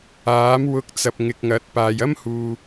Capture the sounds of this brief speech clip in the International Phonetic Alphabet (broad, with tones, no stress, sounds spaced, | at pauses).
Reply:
aː˨˥ m w ʊ˧ k̚ t͡s ɐ˨ p̚ ŋ ɪ˨ k̚ ŋ ɐ˨˥ t̚ p aː˧ j ɐ˥ m h uː˨